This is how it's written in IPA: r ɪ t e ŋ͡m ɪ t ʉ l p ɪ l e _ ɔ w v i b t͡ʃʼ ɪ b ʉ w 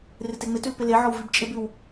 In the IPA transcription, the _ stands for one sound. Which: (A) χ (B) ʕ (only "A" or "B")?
B